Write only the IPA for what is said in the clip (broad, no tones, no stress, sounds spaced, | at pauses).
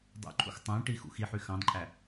dˤ ṵ ǃʰ ṵ x tˤ æ̃ ʈ i x ṵ x i ħ y x ɑ̃ d ǃʼ æ